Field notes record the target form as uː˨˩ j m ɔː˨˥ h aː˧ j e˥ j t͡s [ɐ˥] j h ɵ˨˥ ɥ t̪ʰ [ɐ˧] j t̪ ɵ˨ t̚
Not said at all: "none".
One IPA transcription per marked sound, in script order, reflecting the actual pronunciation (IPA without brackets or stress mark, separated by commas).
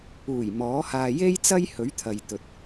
ɐ˥, ɐ˨